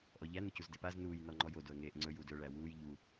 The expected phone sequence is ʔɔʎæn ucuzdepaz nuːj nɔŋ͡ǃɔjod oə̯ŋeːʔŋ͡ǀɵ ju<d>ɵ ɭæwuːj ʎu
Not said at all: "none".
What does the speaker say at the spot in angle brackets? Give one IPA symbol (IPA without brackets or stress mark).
d